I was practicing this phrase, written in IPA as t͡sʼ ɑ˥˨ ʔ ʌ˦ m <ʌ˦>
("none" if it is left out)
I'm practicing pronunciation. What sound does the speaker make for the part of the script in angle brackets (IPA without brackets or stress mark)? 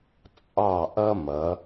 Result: ʌ˩˧